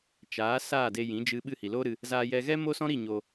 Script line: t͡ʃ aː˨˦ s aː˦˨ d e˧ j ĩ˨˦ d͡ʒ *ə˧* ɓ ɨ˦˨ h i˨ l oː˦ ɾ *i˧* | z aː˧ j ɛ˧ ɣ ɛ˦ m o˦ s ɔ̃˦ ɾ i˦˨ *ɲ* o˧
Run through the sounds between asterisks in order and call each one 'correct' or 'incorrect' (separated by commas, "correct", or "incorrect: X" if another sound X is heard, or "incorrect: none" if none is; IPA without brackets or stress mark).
incorrect: ɨ˧, incorrect: ɨ˧, correct